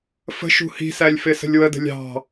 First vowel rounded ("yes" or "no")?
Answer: no